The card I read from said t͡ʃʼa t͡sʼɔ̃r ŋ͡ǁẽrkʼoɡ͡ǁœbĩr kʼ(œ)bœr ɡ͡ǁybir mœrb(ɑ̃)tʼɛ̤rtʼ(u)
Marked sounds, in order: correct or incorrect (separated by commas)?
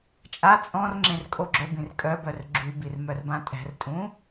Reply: correct, incorrect, incorrect